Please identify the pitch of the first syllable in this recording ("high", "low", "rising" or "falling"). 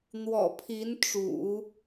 low